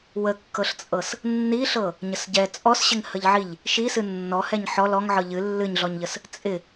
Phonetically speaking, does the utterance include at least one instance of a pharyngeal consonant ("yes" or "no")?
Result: yes